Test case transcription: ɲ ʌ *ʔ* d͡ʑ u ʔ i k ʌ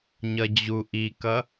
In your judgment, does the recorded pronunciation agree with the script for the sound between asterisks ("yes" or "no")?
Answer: no